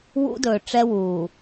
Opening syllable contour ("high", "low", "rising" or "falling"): high